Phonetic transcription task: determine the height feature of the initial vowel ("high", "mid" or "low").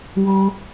mid